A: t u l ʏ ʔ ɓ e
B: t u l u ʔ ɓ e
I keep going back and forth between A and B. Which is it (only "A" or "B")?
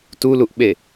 B